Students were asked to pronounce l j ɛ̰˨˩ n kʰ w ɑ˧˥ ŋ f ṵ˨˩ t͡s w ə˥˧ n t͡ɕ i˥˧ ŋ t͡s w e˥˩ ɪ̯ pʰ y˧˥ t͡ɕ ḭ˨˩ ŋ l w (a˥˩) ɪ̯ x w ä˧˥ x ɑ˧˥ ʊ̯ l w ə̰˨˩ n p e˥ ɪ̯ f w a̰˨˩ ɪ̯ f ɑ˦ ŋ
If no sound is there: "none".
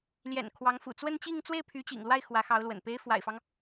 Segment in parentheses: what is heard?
a˥˩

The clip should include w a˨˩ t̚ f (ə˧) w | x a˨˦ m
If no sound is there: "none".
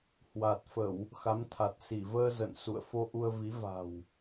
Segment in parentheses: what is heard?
ə˧˩˨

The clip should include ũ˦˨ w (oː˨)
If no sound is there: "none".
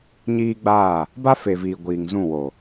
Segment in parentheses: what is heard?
oː˨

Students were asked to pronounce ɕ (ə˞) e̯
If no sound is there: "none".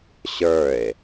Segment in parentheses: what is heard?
ə˞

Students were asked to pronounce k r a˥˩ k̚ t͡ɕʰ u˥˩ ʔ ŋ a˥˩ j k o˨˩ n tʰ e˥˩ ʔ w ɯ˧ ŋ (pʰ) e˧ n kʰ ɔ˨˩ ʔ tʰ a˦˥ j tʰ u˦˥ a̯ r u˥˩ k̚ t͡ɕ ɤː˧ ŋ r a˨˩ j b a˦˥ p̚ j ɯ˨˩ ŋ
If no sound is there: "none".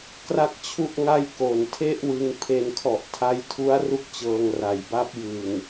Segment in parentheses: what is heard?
pʰ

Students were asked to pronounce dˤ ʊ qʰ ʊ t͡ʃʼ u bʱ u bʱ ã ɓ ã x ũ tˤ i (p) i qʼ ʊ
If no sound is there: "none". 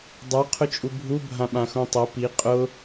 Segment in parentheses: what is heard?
p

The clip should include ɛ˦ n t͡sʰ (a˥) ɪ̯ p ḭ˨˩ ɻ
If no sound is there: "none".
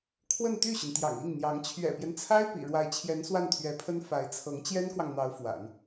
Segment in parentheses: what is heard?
a˥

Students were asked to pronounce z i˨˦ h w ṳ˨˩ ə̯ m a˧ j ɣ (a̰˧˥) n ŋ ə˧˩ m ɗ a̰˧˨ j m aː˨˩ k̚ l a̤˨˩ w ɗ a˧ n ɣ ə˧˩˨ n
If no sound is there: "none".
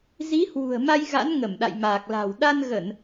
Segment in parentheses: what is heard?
a̰˧˥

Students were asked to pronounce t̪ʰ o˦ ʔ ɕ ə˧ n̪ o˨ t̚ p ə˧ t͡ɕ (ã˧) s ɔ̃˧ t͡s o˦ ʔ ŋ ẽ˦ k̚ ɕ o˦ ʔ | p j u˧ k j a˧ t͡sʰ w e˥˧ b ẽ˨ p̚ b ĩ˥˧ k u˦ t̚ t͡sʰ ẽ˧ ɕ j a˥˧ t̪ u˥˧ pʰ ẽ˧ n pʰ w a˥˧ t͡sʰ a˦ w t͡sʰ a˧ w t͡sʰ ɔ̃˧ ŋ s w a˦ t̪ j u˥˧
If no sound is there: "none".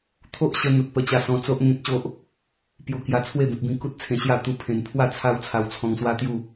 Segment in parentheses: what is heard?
a˧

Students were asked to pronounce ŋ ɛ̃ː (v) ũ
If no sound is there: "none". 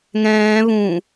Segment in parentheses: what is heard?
β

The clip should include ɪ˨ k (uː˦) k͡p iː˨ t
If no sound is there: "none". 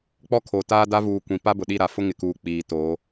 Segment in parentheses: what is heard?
uː˨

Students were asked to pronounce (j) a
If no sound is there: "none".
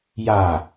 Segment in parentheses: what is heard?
j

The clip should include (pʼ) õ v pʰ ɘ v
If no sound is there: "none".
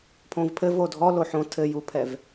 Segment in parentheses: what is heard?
pʰ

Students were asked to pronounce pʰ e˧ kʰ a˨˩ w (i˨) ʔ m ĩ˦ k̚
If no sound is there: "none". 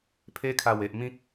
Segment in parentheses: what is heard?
e˨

